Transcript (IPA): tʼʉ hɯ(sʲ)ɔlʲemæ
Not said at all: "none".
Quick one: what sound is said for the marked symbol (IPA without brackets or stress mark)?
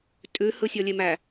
sʲ